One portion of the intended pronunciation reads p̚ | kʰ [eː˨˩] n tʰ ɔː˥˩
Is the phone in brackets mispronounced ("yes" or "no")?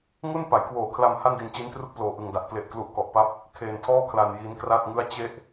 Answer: yes